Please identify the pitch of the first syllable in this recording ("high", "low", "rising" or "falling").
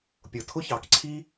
low